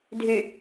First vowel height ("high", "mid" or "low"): high